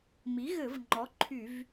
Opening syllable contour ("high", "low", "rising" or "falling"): rising